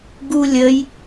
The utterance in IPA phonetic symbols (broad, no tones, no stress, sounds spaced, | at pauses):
ɡ u lʲ ə j